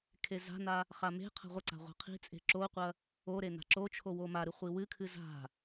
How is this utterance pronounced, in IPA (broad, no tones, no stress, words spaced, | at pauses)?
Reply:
kʰeza̤na | χame̤qʰa̤ ʁʷɐǀa̤ ʁʷa̤qʰi̤t͡sʼe̤ ǁoqʷɐ | o ɾena̤ǁot͡ʃʰo womaɾɨ χʷiwɨkʰɨ za̤